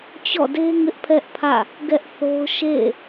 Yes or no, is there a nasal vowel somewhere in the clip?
no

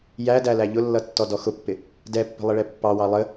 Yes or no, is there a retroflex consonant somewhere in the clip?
yes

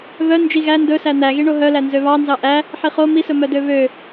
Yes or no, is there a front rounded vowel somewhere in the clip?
yes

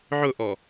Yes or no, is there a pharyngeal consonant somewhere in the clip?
yes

